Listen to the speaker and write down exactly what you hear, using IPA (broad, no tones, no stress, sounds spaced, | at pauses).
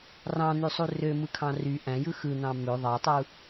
r ɑ̃ n̪ y sˤ u r ø m ɯ kʰ ɑ̃ r y ʔ æ̃ j ɯ x ɯ n̪ ɑ̃ m ø ðˤ ɑ tˤ u